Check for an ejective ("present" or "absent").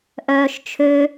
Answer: absent